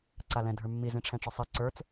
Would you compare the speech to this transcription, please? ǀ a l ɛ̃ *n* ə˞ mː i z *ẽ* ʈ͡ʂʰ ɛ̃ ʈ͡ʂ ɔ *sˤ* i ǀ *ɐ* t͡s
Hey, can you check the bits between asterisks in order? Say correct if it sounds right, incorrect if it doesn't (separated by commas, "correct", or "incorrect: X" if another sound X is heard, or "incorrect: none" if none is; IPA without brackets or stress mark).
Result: incorrect: dʱ, correct, correct, incorrect: ə˞